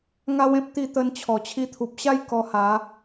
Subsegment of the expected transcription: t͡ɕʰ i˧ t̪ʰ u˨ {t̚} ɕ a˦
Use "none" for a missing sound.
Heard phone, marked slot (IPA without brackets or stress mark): p̚